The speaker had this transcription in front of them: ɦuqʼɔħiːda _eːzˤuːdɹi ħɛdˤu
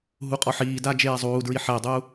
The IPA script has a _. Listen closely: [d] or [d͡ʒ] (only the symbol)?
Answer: d͡ʒ